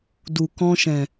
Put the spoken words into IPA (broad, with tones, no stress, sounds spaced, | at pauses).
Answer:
d u˨ k ɔ̃˧ ʃ ɛ̃˨